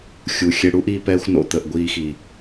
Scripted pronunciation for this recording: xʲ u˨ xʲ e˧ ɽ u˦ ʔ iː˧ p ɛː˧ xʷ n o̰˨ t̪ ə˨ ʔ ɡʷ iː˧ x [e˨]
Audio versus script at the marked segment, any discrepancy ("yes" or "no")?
yes